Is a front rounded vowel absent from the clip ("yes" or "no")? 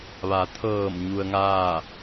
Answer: yes